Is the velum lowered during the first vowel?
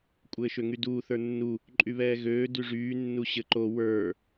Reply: no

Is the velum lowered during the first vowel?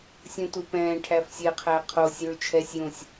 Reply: yes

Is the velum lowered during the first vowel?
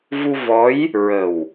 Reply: no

